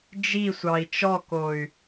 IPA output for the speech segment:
d͡ʒ i sʷ ɑ i̯ t͡ʃ ɔ k o y̯

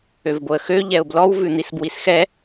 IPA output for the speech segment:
ø v b o ə̯ x ø ʎ ɛ ʊ̯ b l ɔ w v ʉ n̪ i s b w i s x ɛ

